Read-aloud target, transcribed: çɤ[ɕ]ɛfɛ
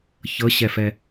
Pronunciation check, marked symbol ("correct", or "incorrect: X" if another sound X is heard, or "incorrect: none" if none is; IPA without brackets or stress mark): correct